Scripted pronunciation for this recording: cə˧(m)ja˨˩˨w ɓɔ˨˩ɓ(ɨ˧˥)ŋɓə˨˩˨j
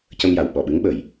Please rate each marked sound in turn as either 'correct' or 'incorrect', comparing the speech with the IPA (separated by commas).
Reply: correct, correct